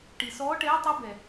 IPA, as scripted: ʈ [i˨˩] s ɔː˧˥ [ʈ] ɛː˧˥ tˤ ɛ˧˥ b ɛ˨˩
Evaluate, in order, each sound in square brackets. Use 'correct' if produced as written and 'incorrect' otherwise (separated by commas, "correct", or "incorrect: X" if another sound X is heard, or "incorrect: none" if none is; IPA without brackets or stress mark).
correct, correct